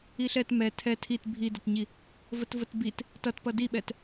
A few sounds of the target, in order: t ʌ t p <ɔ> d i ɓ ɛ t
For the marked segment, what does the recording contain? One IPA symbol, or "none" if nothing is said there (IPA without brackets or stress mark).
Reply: ʌ